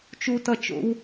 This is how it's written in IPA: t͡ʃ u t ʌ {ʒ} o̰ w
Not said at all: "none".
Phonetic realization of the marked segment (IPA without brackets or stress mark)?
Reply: t͡ʃ